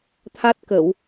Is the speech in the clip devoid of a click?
yes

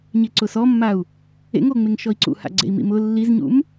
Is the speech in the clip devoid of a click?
no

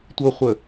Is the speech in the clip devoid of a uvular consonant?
no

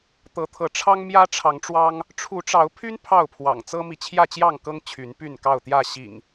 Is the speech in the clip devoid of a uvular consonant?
yes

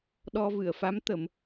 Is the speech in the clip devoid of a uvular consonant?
yes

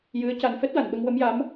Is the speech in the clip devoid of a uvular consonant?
yes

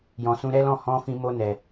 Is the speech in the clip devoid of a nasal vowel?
no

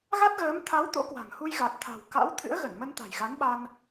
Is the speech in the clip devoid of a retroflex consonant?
yes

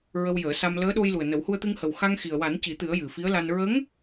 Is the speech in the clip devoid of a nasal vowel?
yes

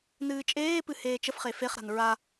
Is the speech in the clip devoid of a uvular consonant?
no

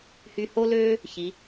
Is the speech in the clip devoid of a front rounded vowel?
no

